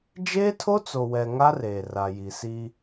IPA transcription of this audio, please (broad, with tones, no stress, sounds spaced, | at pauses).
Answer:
d͡ʒ eː˦ tʰ o˦ t͡s o˨ w ɛ˨ ŋ a˦ r eː˨ r a˨ j i˨ s i˦